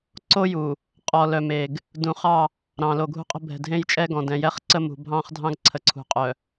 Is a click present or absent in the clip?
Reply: present